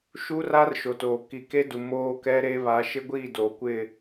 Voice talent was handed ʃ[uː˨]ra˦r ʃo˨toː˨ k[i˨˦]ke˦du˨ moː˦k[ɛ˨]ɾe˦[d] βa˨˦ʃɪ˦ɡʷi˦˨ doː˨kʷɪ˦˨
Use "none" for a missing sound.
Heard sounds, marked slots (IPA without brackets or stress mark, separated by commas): uː˦, i˨, ɛ˦, none